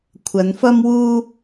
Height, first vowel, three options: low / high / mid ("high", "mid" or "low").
low